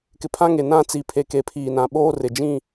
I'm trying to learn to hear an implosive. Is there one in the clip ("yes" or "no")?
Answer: yes